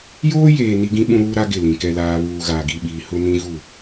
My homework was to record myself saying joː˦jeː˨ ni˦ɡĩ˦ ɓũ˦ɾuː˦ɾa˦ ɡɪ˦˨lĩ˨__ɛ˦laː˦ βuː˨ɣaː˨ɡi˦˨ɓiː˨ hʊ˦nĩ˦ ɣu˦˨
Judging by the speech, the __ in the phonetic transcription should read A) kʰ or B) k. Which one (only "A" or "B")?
B